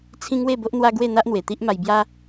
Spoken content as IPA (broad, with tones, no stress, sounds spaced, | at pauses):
t͡sʰ ĩ˦ ŋ w e˥˧ b o˦ ʔ n̪ w a˦ ɡ w e˥˧ n̪ a˦ ʔ n̪ w e˨˩ t̪ i˦ ʔ m a˧ j b j a˦